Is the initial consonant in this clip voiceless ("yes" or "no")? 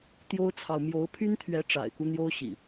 yes